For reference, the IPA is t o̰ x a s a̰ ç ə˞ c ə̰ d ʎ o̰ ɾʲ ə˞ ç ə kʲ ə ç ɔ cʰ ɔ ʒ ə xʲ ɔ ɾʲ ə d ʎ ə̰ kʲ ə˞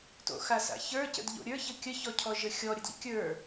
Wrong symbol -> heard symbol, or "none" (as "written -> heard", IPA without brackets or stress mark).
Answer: none